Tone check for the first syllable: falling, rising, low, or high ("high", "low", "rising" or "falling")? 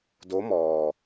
rising